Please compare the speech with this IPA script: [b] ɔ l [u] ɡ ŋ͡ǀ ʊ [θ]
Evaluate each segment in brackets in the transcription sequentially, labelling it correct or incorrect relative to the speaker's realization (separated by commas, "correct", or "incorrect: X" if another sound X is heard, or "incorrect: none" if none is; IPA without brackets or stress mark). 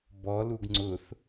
correct, correct, correct